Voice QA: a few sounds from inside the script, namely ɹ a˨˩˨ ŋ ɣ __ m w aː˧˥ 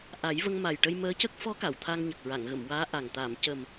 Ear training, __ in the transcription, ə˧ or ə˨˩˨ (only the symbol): ə˨˩˨